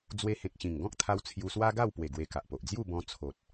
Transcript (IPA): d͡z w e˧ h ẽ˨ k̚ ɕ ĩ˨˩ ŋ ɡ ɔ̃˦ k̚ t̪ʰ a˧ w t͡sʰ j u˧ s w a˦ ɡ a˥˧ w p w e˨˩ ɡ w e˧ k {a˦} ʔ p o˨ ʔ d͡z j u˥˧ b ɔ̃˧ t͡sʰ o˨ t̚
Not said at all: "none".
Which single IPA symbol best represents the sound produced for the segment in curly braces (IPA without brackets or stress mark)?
a˨